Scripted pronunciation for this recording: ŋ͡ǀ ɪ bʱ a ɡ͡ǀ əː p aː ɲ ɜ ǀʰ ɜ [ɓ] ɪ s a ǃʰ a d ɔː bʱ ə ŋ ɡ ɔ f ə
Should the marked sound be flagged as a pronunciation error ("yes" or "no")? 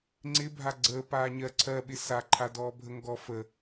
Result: no